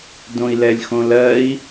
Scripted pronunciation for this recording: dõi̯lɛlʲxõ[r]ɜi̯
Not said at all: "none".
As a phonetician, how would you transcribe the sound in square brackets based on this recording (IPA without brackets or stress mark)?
l